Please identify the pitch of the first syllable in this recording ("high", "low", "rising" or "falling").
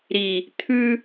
low